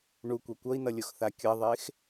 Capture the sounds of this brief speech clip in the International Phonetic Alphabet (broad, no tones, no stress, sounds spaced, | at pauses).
ɳ u kʷ ɛ kʷ ʌ i̯ n ʌ lʲ o x θ a kʲ ʌ ðˤ e x